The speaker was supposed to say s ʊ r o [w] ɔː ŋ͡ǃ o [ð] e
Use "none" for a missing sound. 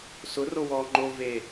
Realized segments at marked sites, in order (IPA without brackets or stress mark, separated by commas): w, v